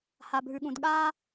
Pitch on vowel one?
low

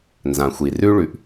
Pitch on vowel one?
low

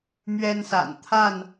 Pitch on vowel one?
high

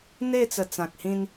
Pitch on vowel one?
falling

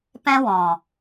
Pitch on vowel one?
high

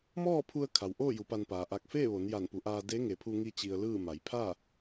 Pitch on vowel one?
falling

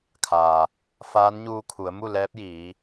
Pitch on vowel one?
low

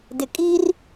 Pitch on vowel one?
low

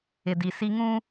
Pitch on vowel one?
low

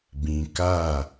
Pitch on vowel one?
low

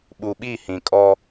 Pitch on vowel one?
low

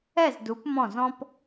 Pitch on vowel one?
falling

